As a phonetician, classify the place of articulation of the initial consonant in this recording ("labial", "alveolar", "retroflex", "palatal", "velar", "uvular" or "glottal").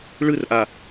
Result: retroflex